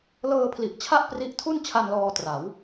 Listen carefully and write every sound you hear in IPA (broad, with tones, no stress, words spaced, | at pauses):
lɤː˧pʰli˨˩ʔ t͡ɕʰa˥˩ʔpri˦˥ʔtʰu˥˩n t͡ɕʰa˧nlɔː˧tra˩˦w